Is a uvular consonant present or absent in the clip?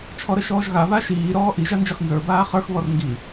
present